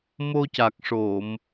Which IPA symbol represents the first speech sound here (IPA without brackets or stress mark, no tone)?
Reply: m